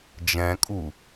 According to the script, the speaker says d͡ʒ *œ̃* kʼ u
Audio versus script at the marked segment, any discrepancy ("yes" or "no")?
yes